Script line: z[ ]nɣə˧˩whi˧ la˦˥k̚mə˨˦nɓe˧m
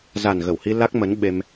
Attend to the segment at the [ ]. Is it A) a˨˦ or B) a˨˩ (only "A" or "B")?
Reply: B